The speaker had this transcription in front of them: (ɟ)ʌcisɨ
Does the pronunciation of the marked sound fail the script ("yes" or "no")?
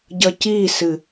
no